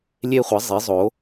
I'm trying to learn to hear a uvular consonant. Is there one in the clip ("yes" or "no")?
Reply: yes